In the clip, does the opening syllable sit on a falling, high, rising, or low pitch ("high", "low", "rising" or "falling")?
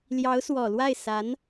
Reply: rising